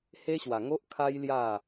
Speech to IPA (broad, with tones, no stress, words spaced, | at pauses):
he˦ɕwa˨˩ŋo˦ʔ kʰa˦jlja˥˧